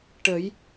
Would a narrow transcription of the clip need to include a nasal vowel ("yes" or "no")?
no